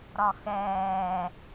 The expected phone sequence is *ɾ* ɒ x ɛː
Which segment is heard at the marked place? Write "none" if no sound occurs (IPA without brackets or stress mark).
ɾ